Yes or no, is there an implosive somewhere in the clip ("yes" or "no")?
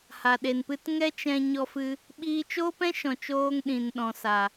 yes